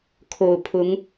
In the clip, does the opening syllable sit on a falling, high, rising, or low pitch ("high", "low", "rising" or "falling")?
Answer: low